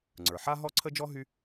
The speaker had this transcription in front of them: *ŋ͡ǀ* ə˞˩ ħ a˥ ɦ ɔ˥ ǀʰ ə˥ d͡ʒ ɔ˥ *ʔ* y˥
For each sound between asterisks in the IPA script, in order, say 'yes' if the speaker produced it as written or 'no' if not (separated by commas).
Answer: yes, no